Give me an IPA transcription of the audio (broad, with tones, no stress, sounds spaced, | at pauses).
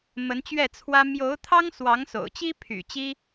m ə˧˥ n t͡ɕ ɥ ɛ˥˩ t͡sʰ w ä˥ m j o˧˥ ʊ̯ t̪ʰ ɑ˥ ŋ s w ɑ˧˥ ŋ s o̰˨˩ ʊ̯ t͡ɕ i˥ pʰ y̰˨˩ t͡ɕ i˥